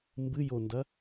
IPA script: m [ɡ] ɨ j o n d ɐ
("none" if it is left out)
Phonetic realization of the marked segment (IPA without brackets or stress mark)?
b